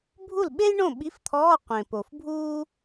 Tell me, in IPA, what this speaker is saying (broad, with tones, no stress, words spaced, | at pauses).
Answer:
bʱu˥˩lɓe˥jɳõ˥˩ ɓi˧˥˧ft̪ʰɔː˧˥˧ qʷẽ˨˩po˨˩fbʱuː˥